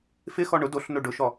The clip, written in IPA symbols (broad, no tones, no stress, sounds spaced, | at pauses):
f ɪ x ɔ ɳ ʊ d o ɬ n o ɖ ʊ ʃ ɔ